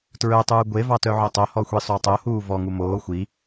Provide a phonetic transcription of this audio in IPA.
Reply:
tɹœtˤuː ɡʷevɑ tœʕotˤohɔ xʷisˤotˤohuː vɔŋu moː xʷi

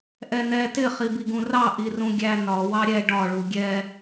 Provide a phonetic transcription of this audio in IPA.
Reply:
ʔɛnɛ tɪ χibiɡũrɑ ʔirũɡʲæ nɒ wɑɾʲɛ ɖɒ ɭuɡʲɛ

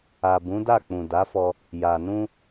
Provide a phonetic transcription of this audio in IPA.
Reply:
a˨ bũ˨˦da˦˨k͡pũ˨ da˨˦fɔ˧ | ja˨nũ˧

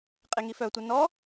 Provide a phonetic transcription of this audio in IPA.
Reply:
qʼeŋifœtʷɛ nɔ

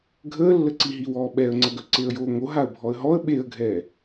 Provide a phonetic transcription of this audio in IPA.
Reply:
ɡʱəːlːəǀiɦi wɔːɓɛə̯ŋ͡ǀəɡœ ǀeə̯joːŋo ɦaə̯bʱɔə̯ɦɔə̯ ɓeə̯ɡʱɛː

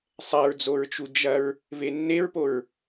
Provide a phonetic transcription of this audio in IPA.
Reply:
sˤɛɹd͡zoɹt͡ʃu d͡ʒɐɹ | venːeɹpoɹ

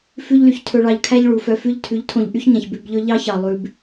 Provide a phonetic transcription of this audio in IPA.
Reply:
fʉ˦ʎly˧ç tʰɵ˧ɭɑ˧ʎkʰæ˦ʎ ɭu˨fœ˧ fʉ˧ʎtʰʉ˨˦ʎ tʰõ˧ʎ ʔy˦çɲæ̃˨ç bʉ˧bʎɵ˦ ʎɑ˦çɑ˨ lˠʉ˧b

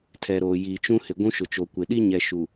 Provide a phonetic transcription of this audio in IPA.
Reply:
tʰɛ˨ɾoː˨jiː˨t͡ʃũ˦ hɪ˨ɡʷũ˦ ʃʊ˨t͡ʃo˨kʷɪ˨ ɗi˦ ɲɛ˨ ʃu˨

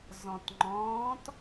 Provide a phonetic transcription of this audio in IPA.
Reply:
zɔ̃tŋ͡ǃɔ̃ːt

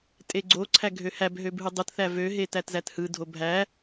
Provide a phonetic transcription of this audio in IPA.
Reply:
tʼeɡ͡ǀoǀʰæ ɡʱøhæbɦøb ɦɯdˤɯtθæ vøɦe tætzæthɯdʱo bʱæ

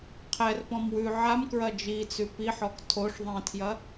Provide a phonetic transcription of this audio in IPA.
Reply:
qʰɛrpɔ̃m wʉ ʕamkɹɐ d͡ʒit͡sʉ piħɔk tʰoʂ ðˤĩtʰjɐ

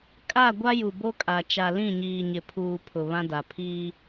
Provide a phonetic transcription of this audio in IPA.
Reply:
kʼa˦˨ ɡʷa˦ju˨bo˦kʼa˨ t͡ʃa˨lĩ˦˨ɲiː˨ɲɪ˨ pʰuː˨ pʰʊ˨βã˦da˨ pʰiː˦

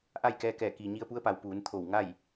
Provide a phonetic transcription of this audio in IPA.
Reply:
ʔa˥˨jkɛː˧kɛː˧˩ kiː˩ɲi˧ə̯pu˧˥ə̯pa˩˧w puː˩˧nt̪ʰo˧˩w ŋa˥˨j

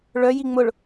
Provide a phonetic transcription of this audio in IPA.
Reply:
ɭœji ŋ͡mʊɭ

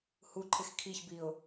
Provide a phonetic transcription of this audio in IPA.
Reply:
huǃʰɪx kʰiçbiʊ̯

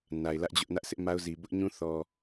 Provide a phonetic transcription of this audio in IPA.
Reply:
na˨ɪ̯lä˦ʔd͡ʑʊ˦ʔ nä˦ʔsʰɪ˦ʔ ma˦ʊ̯zi˨ bʊ˦ʔɲũ˦θɔ˨

